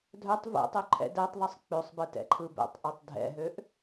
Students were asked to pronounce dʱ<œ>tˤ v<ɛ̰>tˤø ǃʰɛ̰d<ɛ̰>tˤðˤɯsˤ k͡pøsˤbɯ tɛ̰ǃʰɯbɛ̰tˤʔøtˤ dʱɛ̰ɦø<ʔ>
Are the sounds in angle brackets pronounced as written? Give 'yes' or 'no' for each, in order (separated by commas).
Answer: yes, yes, no, yes